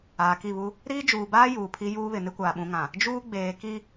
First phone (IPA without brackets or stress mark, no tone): aː